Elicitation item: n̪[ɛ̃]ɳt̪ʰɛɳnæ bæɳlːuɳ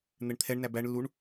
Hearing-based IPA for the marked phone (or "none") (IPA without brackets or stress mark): ɛ